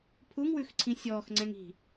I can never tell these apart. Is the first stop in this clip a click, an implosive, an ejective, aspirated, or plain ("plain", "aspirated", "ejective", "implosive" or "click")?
aspirated